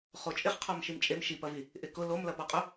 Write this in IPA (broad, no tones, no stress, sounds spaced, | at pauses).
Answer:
χ o t͡ʃʼ ɪ χ qʰ ɔ m ʃ i m t͡ʃʼ e m ʃ i p ɐ v i | ʔ ɪ k ʊ l o m l ɐ p ɔ qʼ ʊ